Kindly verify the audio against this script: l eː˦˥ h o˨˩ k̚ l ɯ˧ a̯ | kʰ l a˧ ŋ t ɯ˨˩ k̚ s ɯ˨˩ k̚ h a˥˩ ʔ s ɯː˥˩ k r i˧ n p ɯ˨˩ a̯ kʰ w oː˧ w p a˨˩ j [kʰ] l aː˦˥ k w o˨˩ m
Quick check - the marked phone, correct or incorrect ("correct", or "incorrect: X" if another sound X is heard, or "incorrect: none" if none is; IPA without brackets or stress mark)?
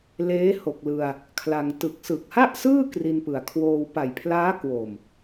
incorrect: pʰ